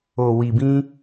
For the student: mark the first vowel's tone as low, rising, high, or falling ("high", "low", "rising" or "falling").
low